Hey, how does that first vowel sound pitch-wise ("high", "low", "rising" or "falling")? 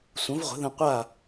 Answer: rising